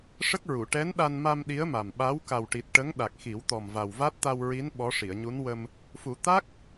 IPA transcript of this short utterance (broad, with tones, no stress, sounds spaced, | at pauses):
ʂ ə˦˥ k̚ ɹ u˨˩˨ ʈ ɛ˧˥ n ɗ a˧ n m a˧ m ɗ i˧˥ ə̯ m a˨˩ m ɓ a˧˥ w k a˨˩ w ʈ i˨˩ t̚ ʈ ə˧˥ ŋ ɗ a˨˩ k̚ x i˨˩˦ w t̪ ɔ˨˩ m v a˨˩ w v a˦˥ t̚ t̪ a˧ w ɹ i˧˥ n ɓ ɔ˧˥ ʂ i˨˩˨ ə̯ ɲ u˧˥ n w ə˧ m | f u˨˩˦ t̪ a˦˥ k̚